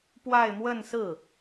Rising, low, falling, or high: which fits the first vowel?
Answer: falling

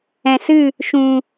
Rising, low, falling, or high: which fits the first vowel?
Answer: low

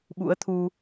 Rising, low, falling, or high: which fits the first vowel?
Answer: rising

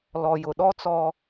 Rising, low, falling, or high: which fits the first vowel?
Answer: low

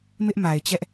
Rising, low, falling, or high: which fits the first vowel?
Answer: high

